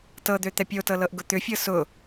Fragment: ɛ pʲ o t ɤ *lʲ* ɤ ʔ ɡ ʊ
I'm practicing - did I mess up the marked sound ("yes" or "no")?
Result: yes